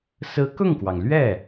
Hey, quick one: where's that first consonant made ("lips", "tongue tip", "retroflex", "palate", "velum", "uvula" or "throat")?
tongue tip